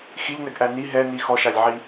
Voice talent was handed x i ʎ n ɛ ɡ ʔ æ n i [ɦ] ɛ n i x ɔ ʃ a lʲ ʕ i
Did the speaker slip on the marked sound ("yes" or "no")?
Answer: no